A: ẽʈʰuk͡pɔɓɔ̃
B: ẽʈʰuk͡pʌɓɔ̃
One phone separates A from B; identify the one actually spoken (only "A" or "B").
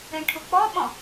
A